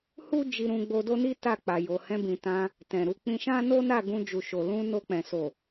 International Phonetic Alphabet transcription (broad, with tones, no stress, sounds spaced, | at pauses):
h u˦ d͡ʒ i˧ ɾ ũ˧ ɡ͡b o˧ d o˦ n i˦ t a˦˨ k͡p a˨ j o˨ h ɛ̃˧ b ĩ˨ t ã˧ | t ɛ̃˨ ɾ u˨˦ k͡p ĩ˧ ʃ ã˦ n o˦ n a˦˨ ɡ ũ˧ d͡ʒ u˨ ʃ o˨ l ũ˧ n o˧ k͡p ɛ̃˨ s o˨